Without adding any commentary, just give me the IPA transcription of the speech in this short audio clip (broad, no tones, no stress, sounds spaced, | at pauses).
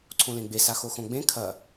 ǀʰ õ l ẽ ɡ͡b e s a x o x õ ɡ͡b ẽ kʰ ɐ